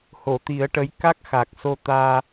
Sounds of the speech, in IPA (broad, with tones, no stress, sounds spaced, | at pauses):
h o˨˩˨ t̪ i˨˩˦ ə̯ ʈ ə˧˥ j k a˦˥ k̚ x a˨˩ k̚ s o˧ t̪ aː˧